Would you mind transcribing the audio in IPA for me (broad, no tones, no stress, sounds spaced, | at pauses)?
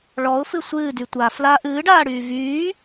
ɭ ɔ ʊ̯ f ɨ sʷ ɨː d y tʷ a f l a ʔ ɨː ɖ aː ɽ yː v yː